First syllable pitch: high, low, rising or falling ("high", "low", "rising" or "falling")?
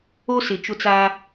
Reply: high